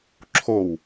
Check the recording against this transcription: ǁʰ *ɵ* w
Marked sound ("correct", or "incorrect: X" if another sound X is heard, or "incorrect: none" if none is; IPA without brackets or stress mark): incorrect: o